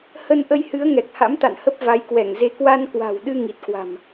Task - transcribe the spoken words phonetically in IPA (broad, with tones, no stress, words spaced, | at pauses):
hə˧nʔə˧jhɨ˨˦ə̯ ŋɛ˨˩k̚ha̰˧˥mt̪a̰˧˨nhə˦˥p̚ va˨˦jkwɛ˧˩ŋze˧ kwa˧nkwa̤˨˩wɗɨ˧ ŋi˨˩t̚kwa̤˨˩m